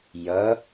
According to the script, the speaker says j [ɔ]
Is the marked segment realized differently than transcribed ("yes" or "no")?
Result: yes